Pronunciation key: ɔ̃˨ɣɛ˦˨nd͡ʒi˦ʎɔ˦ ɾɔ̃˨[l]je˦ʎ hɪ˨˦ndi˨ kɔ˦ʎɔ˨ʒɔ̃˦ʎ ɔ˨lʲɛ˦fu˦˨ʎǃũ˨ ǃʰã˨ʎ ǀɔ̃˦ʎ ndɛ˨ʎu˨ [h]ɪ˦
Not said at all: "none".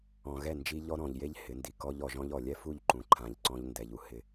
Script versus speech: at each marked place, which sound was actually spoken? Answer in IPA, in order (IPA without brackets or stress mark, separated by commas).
ʎ, h